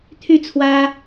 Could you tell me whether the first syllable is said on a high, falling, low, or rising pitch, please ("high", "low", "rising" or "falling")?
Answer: falling